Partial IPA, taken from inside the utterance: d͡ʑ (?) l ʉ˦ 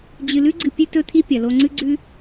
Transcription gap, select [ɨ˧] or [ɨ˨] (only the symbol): ɨ˧